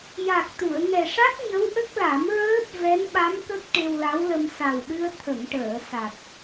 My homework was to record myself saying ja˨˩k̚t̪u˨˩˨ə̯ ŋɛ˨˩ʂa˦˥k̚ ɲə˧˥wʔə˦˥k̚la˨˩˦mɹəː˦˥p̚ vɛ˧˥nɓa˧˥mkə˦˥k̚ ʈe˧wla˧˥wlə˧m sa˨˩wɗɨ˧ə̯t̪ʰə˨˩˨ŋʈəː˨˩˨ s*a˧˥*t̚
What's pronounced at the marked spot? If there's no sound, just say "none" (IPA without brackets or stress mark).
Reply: a˨˩